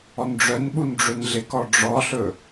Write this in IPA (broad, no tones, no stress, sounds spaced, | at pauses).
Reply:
ɔ n ɖ͡ʐ œ n ɓ u n ɖ͡ʐ ɵ n ɮ ɪ k ɔ ɖ͡ʐ ɔ ɬ ɵ